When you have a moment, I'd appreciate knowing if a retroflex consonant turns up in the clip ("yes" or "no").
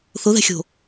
no